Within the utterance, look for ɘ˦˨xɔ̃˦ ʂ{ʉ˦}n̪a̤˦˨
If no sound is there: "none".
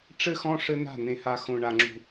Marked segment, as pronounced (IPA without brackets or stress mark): ɘ˦